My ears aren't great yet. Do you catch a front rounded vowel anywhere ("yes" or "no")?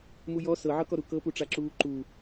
no